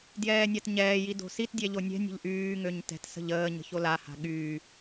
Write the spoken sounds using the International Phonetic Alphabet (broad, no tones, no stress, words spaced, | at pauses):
djɛːnʲatɲɛːji do̤sitdʲɛ ʎonʲɛ̤nʲə̤ʎ ʔyːŋøɲ tɛ̤tsə̤ʎ əː ɲə̤çolaha̤ ɠyː